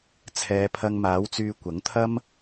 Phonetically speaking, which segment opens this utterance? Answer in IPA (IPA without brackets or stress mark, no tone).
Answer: t͡sʰ